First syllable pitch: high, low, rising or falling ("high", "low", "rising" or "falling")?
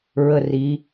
falling